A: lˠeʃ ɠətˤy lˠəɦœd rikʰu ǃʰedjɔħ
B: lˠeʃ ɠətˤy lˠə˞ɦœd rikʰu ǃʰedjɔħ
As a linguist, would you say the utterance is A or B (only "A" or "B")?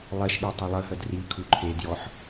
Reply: A